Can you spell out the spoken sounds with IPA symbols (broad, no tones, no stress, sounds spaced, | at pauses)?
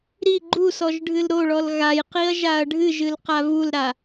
ɾ i ɡ͡ǃ u s ɔ ʒ ɖʱ ɨ l ɾ o ɭ ɔ l ɣ a j q i ɐ̯ ʒ a ɐ̯ ɖʱ ɨ ʒ ɨ l q a v u l ɾ a